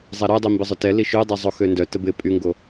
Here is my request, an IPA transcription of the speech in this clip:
zˤ ɛ ɾ œ dˤ i m b ɪ zˤ ʊ t ɛ l i ʃ ø dˤ ɛ zˤ o x ø n d œ t ə b ɪ pʼ y ŋ ɡ o

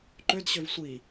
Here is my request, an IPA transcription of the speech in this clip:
ǃ ø d ɕ ø v sʷ i

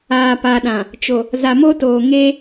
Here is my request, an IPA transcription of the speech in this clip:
aː˨ p a˨ ɗ ã˨ | t͡ʃ o˨ | z a˨ m o˦ t oː˨ ŋ e˦

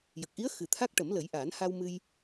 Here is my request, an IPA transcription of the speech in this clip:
j ə˨˩ k̚ ʔ i˧˥ ə̯ x ɨ˨˩ t̪ʰ a˦˥ k̚ ʈ ə˨˩˦ m l ə˨˩˦ j ʔ aː˨˩˦ n h a˧ w m ɨ˧ j

